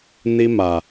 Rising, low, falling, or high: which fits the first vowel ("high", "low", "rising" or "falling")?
high